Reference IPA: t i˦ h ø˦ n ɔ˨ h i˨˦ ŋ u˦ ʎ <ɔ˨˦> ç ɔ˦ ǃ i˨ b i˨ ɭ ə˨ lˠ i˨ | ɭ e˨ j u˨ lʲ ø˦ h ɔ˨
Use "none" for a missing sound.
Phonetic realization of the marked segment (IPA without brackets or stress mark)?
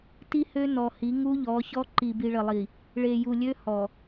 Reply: ɔ˨˦